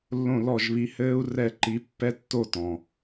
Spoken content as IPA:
lː õ˥˧ l ɔ˥˧ ʒ β i˧˥ h ɘː˥ u̯ r ɛ˥˧ ǃ i˧˥ pː ɛ˥ tː o˥˧ t ɔ̃˨

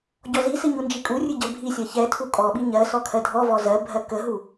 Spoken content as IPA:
ɟ ɔ z i s ɨ ɲ u n d͡ʒ i kʼ u rʲ ɨ ɟ ə bʱ i sʲ ɜ ç ɛ tʰ u kʼ ɔ ɓ i ɲ ɜ s ɔ kʰ ɜ dʱ ɔ v ɔ z ɜ bʱ ɜ k ə ɦ u

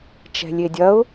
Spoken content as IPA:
t͡ʃ ɛ̤ lʲ e dʲ ɐ ʊ̯

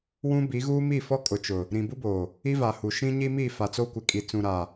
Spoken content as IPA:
w ũ˦ b i˨˦ ɣ uː˦ m i˦˨ f ɔ˦ kʼ ʊ˨ t͡ʃ ʊ˨ | ɾ ĩ˨ b u˦ b oː˨ | i˦ v a˨ h u˨ ʃ ĩ˦ ɲ i˦ m i˦˨ f a˨ t͡s o˦ kʷ ɪ˨ kʼ i˨ t͡s ũ˨ ɾ a˨

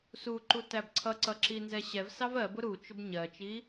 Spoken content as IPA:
s u ǃ u t æ b ǀʰ ʌ ǀ ʌ ǁ i n z ɛ ɕ ɛ v s ɑ v ɜ b ʊ ɾ u t͡ʃ ʊ b ɲ ɜ t͡ʃ i

